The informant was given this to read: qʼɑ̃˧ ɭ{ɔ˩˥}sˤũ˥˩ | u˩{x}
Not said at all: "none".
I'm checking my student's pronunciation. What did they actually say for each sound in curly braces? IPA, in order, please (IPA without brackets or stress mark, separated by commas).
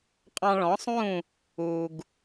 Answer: ɔ̃˩˥, ɡ